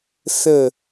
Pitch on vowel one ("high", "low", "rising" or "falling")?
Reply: falling